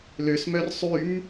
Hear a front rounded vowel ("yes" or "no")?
yes